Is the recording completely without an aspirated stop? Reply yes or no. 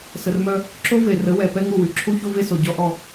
no